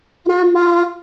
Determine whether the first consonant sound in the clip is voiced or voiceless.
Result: voiced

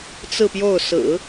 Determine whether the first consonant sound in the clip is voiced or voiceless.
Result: voiceless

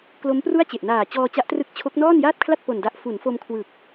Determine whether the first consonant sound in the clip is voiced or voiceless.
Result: voiceless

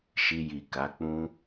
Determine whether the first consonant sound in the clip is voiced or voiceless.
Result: voiceless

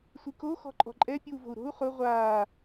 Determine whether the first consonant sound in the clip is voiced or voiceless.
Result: voiceless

